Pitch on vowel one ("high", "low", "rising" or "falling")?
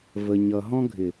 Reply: low